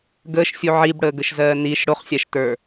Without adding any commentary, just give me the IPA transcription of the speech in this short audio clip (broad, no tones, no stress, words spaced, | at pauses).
ɡəːʃsʲu ʕibɽəːɡəʃzɜː niʃ ɽoχsʲaʃtə˞